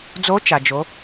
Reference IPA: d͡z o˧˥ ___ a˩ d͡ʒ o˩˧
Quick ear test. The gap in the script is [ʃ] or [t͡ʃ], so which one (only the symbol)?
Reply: t͡ʃ